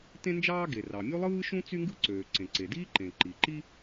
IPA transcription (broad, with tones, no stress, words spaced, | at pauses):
tẽ˥nd͡ʒɑː˥ ɡe˩rɑ˩mʲu˥ lˠɯː˥ʃũ˥ t͡sy˥ŋɡɯ˥ǀøː˩ ǀẽ˩ǀe˩diː˥ǃẽ˩ ǃi˩ǃi˥